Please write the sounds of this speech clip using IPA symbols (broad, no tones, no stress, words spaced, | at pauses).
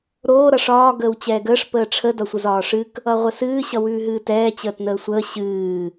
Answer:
ɾoː ɾʌʂɒː ɡəːwt͡ɕɛːɡəːʂ pəːʈ͡ʂʰə dʌsʷəzɒːʂɨk | ʌʁʷəsɨː ɕʌwʉːɦɨːtɛː t͡ɕəːtnəːsʷəː ɕɨː